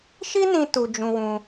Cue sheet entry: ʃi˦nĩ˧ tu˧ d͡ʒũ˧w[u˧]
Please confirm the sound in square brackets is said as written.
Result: no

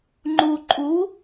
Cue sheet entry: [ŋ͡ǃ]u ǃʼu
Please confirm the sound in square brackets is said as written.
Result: yes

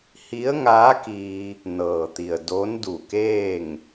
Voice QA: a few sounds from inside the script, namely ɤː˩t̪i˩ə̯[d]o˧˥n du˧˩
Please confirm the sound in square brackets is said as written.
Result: yes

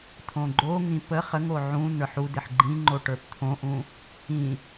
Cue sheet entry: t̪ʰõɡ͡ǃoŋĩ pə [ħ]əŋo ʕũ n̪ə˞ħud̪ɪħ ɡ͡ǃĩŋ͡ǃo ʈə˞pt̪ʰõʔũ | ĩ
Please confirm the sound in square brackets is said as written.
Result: no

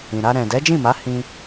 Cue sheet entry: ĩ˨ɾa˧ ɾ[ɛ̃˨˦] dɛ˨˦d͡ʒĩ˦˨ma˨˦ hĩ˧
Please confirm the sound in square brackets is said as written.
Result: no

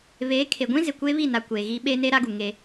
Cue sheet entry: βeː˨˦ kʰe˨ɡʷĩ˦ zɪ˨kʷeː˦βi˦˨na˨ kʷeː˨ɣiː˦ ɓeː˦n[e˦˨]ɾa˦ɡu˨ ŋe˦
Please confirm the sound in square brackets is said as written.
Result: no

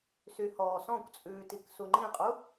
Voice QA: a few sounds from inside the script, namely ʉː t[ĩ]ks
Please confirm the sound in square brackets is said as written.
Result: no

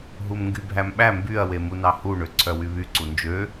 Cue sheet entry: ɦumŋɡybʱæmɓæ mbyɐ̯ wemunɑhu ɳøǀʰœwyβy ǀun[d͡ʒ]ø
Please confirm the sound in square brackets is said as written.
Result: yes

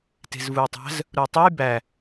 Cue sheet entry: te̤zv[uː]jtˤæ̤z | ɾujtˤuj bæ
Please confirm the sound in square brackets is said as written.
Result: no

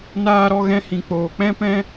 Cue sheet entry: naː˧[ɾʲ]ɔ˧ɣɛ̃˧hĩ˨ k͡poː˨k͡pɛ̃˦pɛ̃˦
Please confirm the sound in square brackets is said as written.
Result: no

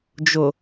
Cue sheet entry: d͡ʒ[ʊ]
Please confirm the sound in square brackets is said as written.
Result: yes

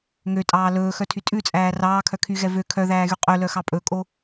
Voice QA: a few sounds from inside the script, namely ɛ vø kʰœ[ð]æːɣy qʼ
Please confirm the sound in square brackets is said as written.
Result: yes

